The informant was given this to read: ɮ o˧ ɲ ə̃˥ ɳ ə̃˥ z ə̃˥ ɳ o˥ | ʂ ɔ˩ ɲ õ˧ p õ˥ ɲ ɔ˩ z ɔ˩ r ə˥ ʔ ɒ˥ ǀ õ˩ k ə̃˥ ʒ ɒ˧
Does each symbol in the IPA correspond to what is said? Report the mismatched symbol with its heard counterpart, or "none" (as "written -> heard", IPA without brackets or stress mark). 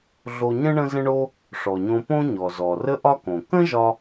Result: ǀ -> k